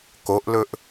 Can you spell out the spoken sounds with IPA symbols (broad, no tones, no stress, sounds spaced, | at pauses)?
k o ʔ l ɵ ʔ